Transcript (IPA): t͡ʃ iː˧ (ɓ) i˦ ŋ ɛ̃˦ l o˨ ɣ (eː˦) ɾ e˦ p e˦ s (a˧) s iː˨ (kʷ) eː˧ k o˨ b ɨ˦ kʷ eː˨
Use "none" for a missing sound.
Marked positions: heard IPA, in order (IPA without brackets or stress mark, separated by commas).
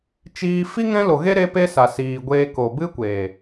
f, e˦, a˨, ɡʷ